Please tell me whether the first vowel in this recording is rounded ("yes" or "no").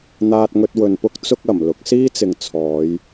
no